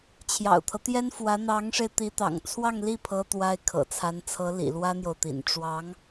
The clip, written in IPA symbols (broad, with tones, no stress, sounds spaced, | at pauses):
t͡ɕʰ j ɑ̰˨˩ ʊ̯ t̪ʰ ɤ˦ t̪ j ɛ˥ n f w ä˧˥ n̪ ɑ˧˥ ŋ ʂ e˧ ɪ̯ t̪ i˧˥ t̪ ɑ̰˨˩ ŋ t͡sʰ w ɑ˥˧ ŋ l i˥˩ pʰ ɤ˥ t̪ w a˥ ɪ̯ kʰ ɤ̰˨˩ t͡sʰ a˧˥ n t͡sʰ ɤ˧˥ l ḭ˨˩ l w ä˥ n̪ j o˨ ʊ̯ t̪ ḭ˨˩ n ʈ͡ʂ w ɑ˧˥ ŋ